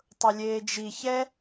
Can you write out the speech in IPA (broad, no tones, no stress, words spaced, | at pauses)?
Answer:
tˤʊlʲeːd͡ʒi çɛ